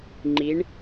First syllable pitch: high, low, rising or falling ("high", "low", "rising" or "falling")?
rising